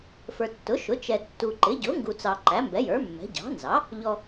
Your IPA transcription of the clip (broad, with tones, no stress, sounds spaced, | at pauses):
f ə˞˨ tː ʊ˩˥ ʃ ʊ˩˥ t͡ʃ ɛ˨ tː u˨ ǃ ɪ˩˥ ɟ ʊ˩˥ ŋ ɡ u˨ t͡s ɑ˨ ǃ æ˩˥ m b ɛ˩˥ j ə˞˩˥ mː ɛ̤˩˥ ɟ ɑ̤˩˥ n z ɑ˩˥ | ʎ ɔ˨